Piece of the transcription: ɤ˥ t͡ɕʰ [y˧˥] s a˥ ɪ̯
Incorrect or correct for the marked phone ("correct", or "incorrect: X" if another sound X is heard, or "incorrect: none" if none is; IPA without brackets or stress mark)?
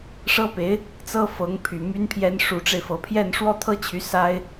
correct